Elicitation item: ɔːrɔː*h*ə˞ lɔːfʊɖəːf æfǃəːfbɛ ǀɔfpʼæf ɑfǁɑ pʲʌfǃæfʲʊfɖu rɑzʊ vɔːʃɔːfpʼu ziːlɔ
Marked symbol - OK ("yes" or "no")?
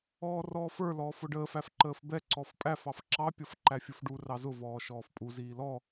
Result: no